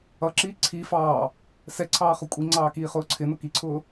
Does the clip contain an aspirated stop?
yes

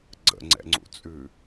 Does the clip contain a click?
yes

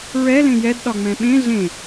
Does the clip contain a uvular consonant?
no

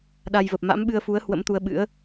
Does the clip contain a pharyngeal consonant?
no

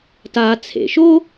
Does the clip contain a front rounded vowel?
no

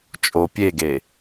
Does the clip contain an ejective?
yes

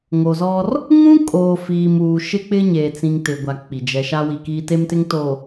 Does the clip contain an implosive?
no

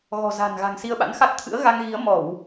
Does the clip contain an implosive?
yes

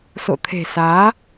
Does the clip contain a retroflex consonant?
no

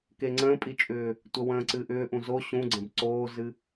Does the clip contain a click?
yes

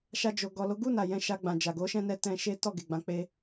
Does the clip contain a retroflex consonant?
no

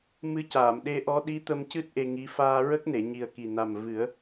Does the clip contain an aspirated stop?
no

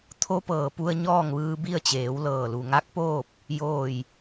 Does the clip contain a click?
no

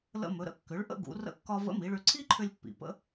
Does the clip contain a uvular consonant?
no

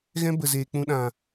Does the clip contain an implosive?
yes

